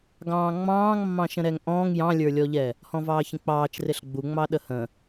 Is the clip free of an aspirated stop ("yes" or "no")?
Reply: yes